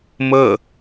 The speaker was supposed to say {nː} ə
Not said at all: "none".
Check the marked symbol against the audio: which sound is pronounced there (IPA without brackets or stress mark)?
m